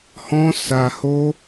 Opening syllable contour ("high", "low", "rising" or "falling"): high